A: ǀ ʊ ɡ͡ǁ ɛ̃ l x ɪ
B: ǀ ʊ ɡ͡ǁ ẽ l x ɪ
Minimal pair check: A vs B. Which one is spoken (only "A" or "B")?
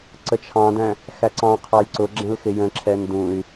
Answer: A